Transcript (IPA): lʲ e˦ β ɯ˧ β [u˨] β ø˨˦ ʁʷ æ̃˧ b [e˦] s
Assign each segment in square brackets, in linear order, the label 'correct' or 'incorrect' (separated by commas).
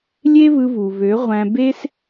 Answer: correct, correct